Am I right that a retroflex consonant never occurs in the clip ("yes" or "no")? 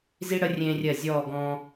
no